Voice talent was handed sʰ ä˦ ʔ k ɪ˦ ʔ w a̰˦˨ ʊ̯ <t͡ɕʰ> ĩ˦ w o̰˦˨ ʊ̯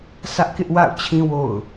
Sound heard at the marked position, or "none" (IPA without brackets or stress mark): t͡ɕʰ